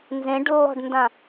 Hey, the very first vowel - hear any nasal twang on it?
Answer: yes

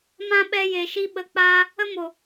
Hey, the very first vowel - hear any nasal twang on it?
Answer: yes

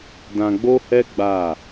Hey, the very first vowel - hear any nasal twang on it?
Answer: yes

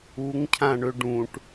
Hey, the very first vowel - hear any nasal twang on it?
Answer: no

